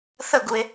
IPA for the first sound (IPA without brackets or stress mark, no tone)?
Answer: θ